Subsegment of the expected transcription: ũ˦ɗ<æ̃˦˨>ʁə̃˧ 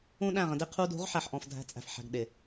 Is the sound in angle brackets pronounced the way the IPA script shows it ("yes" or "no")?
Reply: yes